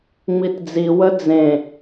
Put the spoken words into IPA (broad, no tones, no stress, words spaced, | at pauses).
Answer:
ŋ͡mitd͡zi wəd͡zẽ